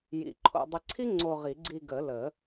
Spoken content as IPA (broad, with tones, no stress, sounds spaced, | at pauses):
j ḭ˨˩˦ ǃʰ o̰˧ dˤ ɘ˧ ǀʰ i˥ ŋ͡ǀ o˧ ʁ i˨˩˦ ɡ͡ǀ i˧ ɡ ə˨˩˦ l ə˨˩˦